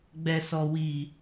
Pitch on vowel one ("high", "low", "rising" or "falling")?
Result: low